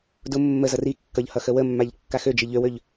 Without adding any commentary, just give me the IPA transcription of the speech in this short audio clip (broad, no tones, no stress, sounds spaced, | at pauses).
d ʊ mː ə z ʌ r i kː ʌ ʎ h ʌ x ə w ə mː a ʎ kː a x ø d͡ʒ i ʎ ø w ø ʎ